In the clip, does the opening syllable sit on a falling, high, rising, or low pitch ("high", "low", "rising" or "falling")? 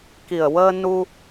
low